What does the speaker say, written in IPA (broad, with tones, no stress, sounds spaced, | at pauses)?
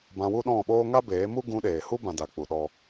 b ã˧ w u˦ ɗ ɔ̃˦˨ ɓ oː˦ ŋ a˦ b eː˨˦ m u˦ ɡ ũ˧ ɗ eː˨ h u˦ b ã˦ d a˧ k͡p u˧ ɗ ɔ˦